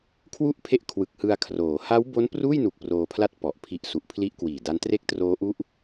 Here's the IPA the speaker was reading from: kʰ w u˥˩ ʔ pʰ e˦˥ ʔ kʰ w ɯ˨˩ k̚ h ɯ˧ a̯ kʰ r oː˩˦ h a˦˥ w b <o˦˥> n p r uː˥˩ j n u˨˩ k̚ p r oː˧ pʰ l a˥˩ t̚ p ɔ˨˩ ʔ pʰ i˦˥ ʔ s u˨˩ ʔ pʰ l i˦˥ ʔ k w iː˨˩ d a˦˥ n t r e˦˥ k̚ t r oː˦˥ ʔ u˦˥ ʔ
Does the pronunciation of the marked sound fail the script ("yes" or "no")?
no